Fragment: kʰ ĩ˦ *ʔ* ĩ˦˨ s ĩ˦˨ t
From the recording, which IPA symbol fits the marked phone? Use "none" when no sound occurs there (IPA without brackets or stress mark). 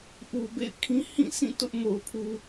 h